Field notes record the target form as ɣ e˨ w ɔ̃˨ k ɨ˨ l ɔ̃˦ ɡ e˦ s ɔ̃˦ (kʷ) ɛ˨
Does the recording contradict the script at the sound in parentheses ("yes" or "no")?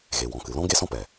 yes